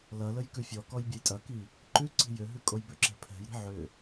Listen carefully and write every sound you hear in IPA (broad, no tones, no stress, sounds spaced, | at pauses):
l ɐ l ə j k ʉ fʲ ɔ k ɔ j bʲ ɐ j tʼ ɐ k i | ǃ ʉ ǀ i̤ j ʏ ɦ ʉ kʼ o j b ʏ ǁ ɛ̤ pʰ ɛ̤ j ɾ i̤ ʕ ʏ